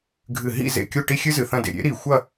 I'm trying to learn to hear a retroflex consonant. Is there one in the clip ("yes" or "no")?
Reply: yes